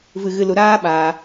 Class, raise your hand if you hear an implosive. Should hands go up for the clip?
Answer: yes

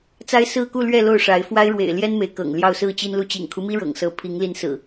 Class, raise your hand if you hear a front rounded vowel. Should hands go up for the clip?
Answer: no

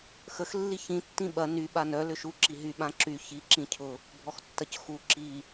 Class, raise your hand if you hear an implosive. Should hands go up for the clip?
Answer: yes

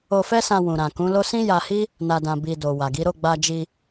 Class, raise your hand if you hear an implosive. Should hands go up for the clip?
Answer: no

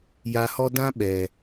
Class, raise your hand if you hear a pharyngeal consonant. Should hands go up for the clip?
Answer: no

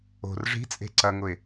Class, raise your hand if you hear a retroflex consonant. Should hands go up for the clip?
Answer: yes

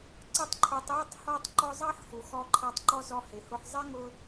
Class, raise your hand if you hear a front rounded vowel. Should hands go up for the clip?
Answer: no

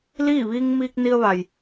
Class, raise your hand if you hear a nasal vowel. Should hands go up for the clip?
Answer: no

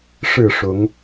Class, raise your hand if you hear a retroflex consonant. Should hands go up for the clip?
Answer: yes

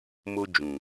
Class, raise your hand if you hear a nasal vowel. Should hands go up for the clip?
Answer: yes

